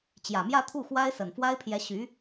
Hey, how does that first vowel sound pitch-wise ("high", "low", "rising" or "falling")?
low